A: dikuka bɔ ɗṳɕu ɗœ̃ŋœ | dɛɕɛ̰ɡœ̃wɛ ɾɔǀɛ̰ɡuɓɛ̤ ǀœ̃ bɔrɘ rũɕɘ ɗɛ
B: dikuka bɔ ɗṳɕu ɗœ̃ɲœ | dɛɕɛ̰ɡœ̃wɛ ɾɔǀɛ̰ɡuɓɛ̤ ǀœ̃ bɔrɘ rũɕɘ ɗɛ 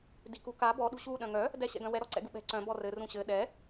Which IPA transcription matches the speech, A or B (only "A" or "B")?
A